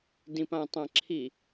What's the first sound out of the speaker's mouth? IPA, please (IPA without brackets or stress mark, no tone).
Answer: d